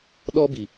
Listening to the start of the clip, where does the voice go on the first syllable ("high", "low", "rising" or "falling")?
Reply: high